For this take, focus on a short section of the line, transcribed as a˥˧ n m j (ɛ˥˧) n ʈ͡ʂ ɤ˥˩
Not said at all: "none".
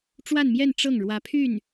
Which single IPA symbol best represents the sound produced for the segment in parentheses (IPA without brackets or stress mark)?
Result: ɛ˥˧